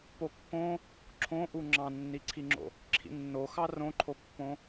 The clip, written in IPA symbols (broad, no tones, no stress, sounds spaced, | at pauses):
p o kː õ | ǁʰ õ ʔ u ŋ͡ǁ ɑ̃ nː i ǀʰ i ŋ͡ǁ o̰ | ǁʰ ḭ nː o x ɑ r õ ǃʰ o pː õ